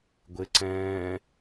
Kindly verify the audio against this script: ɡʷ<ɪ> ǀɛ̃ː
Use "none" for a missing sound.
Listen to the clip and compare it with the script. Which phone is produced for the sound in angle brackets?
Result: ɪ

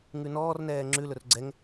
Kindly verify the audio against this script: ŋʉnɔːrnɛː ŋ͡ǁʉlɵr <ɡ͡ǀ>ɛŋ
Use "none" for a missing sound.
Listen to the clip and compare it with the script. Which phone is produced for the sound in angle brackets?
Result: ɡ͡ǀ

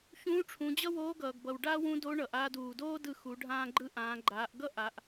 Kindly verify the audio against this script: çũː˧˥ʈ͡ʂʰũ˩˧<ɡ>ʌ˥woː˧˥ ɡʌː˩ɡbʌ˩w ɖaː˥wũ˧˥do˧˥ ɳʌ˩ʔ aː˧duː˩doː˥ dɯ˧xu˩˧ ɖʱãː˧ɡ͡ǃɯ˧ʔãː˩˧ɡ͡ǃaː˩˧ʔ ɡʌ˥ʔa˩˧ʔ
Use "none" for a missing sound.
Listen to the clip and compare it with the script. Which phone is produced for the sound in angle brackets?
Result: d͡ʑ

